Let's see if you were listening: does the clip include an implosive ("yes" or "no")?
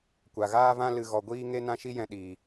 yes